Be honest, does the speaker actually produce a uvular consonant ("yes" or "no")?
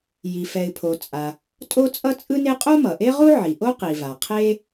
yes